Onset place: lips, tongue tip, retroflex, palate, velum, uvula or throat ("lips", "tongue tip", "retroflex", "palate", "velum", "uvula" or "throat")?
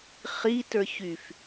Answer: uvula